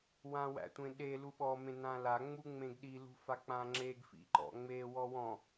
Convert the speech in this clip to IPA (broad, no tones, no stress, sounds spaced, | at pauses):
w ã w æ̰ tʷ ẽ ɗ e l u ɓ ɔ m ẽ n ã l a ŋ͡m u ŋ͡m ẽ ɡ ɗ i l ṳ f a k͡p ã ŋ͡ǁ e ɡ f ḭ ǃ ɔ̰ ŋ͡m e w ɔ w ɔ̃